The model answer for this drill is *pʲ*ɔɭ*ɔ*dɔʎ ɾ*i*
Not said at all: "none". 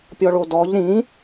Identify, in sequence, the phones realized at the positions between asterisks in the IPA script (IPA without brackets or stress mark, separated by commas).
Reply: pʲ, o, ĩ